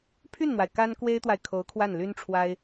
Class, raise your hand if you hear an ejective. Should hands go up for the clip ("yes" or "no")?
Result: no